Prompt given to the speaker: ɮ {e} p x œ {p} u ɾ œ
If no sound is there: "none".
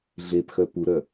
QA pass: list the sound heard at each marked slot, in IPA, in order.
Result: e, p

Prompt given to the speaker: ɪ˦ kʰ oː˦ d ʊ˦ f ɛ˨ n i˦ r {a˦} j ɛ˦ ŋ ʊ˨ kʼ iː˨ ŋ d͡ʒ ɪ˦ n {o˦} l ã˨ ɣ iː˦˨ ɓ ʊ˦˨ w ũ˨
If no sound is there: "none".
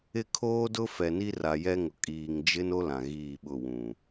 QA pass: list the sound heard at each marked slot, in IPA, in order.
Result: a˨, o˦

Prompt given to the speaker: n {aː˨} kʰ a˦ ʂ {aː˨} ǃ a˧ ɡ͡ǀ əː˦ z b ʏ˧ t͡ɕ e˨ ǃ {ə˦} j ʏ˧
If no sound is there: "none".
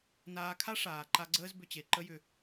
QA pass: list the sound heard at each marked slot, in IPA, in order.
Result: aː˧, aː˨, ə˦

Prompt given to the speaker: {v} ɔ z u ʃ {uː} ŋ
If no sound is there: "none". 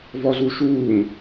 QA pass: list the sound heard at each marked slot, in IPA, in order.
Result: v, uː

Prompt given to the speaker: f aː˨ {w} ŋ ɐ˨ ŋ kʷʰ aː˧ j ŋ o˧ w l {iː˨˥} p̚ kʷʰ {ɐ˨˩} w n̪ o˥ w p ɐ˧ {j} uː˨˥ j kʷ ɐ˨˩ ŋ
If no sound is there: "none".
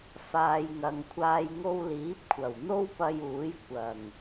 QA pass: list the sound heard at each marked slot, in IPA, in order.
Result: j, iː˨˥, ɐ˨˩, j

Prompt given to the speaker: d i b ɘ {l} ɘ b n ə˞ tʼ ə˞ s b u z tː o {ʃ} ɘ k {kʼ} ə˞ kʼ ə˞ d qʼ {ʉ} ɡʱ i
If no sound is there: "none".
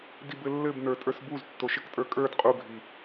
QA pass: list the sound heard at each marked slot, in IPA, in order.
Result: lː, ʃ, tʼ, u

